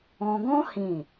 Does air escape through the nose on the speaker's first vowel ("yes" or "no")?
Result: yes